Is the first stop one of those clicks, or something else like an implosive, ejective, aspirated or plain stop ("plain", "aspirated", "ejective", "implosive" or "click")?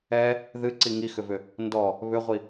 click